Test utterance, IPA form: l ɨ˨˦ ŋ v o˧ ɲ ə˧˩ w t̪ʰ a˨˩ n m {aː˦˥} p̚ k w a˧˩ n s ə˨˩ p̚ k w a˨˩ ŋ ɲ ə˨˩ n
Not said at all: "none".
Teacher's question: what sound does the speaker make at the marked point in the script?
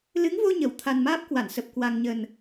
aː˦˥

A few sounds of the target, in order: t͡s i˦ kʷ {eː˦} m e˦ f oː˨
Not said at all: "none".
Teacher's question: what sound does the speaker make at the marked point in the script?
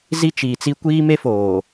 iː˦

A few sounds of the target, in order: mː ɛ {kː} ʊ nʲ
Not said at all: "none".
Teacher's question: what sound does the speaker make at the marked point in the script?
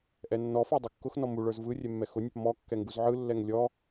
x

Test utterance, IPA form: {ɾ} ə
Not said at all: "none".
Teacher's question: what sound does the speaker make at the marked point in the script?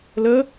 l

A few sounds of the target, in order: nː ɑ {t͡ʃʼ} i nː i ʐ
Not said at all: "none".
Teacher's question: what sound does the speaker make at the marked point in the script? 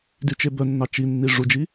t͡ʃ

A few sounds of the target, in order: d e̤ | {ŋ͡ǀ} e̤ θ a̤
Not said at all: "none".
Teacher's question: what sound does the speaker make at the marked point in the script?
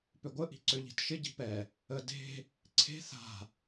ǀʰ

